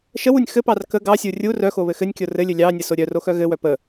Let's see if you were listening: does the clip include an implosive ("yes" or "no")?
no